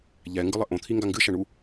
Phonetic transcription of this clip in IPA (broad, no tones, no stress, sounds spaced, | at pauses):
ʎ ɛ ŋ ɡ ɨ lˠ ɘ ʔ õ t̪ʰ i ŋ ɡ a ŋ ɡ ɨ ʃ ɐ ɳ u